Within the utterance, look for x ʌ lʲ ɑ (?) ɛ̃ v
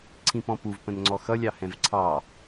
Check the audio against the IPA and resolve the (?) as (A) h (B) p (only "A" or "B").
A